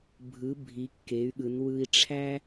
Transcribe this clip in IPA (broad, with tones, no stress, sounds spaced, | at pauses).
bʱ ɯ˩˧ bʱ i˩˧ kː e˩˧ y̯ ɠ ɯ˩˧ n w ɯ˧ i̯ ʈ͡ʂʰ æ˥